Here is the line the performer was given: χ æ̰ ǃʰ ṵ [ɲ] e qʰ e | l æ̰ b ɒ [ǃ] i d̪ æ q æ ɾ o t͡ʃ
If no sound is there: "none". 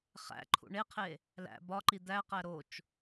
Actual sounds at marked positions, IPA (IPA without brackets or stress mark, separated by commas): ɳ, ǃ